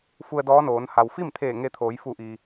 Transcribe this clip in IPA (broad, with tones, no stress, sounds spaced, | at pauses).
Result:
f u˧ ə̯ d ɔː˧˥ n oː˩˧ n h a˩ w f i˥˨ m t̪ʰ eː˧˩ ŋ e˧ t̪ʰ oː˩˧ j f u˧˩ ʔ iː˩